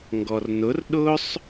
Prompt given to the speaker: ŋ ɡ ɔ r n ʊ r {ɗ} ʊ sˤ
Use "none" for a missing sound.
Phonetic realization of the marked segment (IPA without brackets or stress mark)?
ɗ